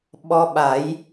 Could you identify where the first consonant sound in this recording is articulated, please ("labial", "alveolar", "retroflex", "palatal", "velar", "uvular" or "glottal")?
labial